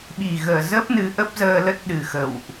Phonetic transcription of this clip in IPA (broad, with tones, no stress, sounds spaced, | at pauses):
ɓ i˨˩ ɣ əː˨˩ z ə˦˥ p̚ n ɨ˨˦ ʔ ə˦˥ p̚ z əː˧ l ə˦˥ t̚ ɗ ɨ˨˩ x ə̰˧˨ w ʔ